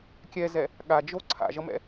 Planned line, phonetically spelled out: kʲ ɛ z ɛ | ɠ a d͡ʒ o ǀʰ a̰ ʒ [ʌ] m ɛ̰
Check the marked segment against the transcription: correct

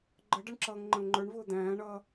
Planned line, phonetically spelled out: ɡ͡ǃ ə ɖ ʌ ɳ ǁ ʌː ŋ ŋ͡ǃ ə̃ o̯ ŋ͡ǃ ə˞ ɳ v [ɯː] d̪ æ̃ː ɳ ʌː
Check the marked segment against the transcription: incorrect: ʊː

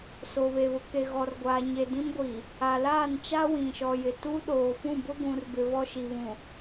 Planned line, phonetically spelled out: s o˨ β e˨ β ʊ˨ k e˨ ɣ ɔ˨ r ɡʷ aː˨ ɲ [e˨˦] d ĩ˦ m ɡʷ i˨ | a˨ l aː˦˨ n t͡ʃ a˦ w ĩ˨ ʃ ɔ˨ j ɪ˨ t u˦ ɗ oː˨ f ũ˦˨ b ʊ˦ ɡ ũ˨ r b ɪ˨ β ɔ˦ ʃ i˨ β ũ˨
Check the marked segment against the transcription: incorrect: e˨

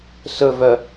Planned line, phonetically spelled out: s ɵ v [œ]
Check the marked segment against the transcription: correct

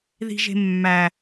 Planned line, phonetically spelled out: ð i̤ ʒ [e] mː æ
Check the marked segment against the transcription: incorrect: e̤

